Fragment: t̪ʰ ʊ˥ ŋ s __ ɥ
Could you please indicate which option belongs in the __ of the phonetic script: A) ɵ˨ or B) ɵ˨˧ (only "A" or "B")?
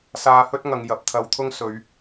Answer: B